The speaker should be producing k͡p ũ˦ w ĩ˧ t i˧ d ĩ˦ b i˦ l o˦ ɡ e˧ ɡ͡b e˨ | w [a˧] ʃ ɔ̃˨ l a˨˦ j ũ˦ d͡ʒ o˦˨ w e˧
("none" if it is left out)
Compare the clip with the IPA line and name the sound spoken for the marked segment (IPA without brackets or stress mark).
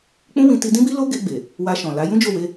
a˧